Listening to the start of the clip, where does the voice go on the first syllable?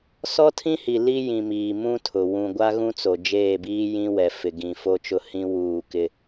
high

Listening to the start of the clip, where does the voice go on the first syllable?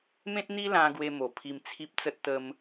high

